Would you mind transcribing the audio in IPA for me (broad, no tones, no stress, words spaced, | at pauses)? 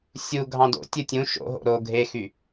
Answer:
sʲu ɡʱɑ̃do̰ tʲɯtʲũ ʃo̰ɦo̰ ɾo ɡʱexy